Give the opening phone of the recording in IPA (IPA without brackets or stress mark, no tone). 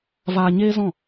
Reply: v